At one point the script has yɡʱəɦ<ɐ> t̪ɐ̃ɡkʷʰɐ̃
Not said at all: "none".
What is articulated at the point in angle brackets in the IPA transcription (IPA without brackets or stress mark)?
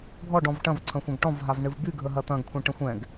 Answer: ɐ